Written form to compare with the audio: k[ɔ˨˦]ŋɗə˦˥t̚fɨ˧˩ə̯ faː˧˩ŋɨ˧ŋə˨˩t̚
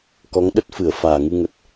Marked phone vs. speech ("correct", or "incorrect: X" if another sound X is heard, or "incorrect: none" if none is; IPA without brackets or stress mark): correct